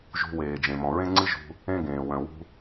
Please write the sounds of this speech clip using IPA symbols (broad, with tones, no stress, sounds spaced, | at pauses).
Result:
ʒ ṳ˧ w eː˩ d͡ʒ ẽ˩ m ɔ̃˩ ɹ ẽ˥ ŋ͡ǀ ɨ˥ ʒ ṳ˧ | ẽ˥ ɡ ẽː˩ w œ̃˩ w ṳ˧